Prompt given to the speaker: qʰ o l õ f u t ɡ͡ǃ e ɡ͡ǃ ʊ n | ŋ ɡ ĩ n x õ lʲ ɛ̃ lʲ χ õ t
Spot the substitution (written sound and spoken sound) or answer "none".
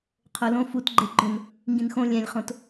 none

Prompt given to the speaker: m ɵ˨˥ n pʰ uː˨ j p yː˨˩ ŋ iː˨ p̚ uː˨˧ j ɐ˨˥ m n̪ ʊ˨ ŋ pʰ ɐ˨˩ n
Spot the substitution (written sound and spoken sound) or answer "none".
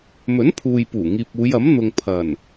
yː˨˩ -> uː˨˩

